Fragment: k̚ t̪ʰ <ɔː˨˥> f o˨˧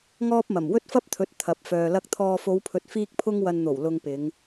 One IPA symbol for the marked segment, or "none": ɔː˨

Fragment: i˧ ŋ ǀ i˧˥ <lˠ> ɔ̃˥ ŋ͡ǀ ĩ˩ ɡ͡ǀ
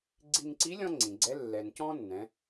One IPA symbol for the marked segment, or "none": lʲ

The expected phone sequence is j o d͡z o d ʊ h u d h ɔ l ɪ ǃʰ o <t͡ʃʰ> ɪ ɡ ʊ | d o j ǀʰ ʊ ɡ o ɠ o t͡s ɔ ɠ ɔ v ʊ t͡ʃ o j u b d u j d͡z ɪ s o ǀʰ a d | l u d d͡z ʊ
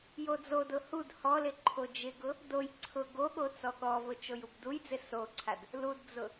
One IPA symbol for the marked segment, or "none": d͡ʒ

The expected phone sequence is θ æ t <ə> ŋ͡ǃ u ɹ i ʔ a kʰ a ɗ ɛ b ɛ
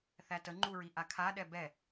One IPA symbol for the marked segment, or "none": ə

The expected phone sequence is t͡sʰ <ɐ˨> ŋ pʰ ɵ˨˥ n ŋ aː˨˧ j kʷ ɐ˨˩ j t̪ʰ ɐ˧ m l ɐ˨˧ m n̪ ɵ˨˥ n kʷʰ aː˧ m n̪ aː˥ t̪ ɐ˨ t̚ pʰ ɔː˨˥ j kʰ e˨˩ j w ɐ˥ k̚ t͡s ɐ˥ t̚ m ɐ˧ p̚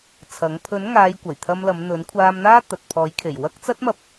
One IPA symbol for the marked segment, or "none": ɐ˨˥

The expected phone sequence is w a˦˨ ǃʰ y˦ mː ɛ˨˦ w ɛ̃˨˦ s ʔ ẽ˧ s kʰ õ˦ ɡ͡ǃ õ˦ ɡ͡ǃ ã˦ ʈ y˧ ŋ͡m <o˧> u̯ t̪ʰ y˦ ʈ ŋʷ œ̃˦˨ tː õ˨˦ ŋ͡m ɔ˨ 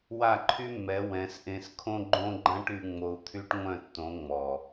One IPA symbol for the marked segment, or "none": o˧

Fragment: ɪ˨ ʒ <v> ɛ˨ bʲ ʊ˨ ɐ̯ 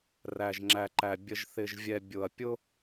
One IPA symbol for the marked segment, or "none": vʲ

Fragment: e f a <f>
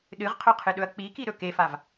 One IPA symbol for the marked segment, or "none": v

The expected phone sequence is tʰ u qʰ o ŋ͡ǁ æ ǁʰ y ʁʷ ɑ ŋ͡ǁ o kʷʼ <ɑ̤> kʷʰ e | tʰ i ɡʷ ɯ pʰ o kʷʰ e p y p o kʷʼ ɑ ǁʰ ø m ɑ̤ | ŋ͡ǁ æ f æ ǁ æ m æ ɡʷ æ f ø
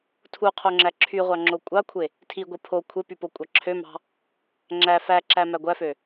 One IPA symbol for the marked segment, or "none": ɑ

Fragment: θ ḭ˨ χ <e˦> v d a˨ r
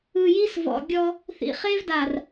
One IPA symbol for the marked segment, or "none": e˦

